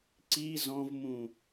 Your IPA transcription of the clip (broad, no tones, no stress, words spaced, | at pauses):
ǀi zɔ̃vmũ